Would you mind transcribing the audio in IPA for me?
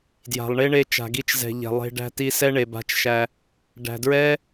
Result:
dja̤˨lˠɳe˦ɳe˧ t͡ʃa̤˨ɡi˧t͡ʃzɛ̤˨ ʎɛ̤˨lˠe̤˧ ɖæ̤˧ti˧sɛ˦ ɳe˨ba̤˧t͡ʃʃæ˧ | ɖæ̤˨dɹɛ˦

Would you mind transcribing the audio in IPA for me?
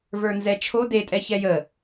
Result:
və˞nzɛt͡ʃʰo detʼɛ çɛjə

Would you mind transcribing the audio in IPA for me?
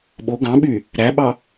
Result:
ɓo ɡɑ̃ɓy | ɾæɓɑ

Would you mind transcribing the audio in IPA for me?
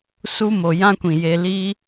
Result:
su˧mo˨jã˧kʷĩ˨ je˧liː˦

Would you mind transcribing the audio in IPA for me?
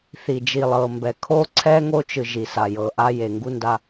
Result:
θi˨ d͡ʒi˨lˠɤ˨mbɛ˨ kʰo˦ǀʰɛ˦ ŋo˦t͡ʃɯ˨ ʒi˨sa˨ jɤ˨ʔa˦je˨ ŋɡu˦nda˦

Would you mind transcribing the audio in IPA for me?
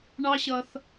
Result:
ɳɑ˦ɕʌ˧θ

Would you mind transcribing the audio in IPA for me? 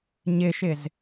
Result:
ɲɪʃɪz

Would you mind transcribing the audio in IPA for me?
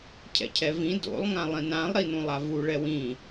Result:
cʰɛ̰cʰɛvĩ do̰lˠ ŋãlˠĩnãlˠ ɾinũlˠavu ɭɛwĩ

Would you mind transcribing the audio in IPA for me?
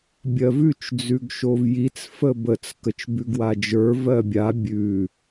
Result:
bʲɜvʉt͡ʃ d͡zʉɡʃovjit͡s fəbət͡s kət͡ʃbʉɡwad͡ʒə˞ vɜbʲa bʲʉ

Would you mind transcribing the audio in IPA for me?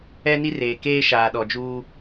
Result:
ɛ˦ni˦reː˨ keː˦ʃaː˨ɗɔ˨ d͡ʒuː˦

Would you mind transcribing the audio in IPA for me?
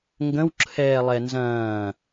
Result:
ŋɡə̃wǁʰɛː lˠɛnzɐ̃ː

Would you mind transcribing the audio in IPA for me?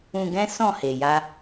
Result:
ũ˧ɡɛ̃˦ sɔ̃˦˨he˨ja˧

